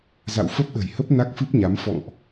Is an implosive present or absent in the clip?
present